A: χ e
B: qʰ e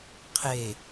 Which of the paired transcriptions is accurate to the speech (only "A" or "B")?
B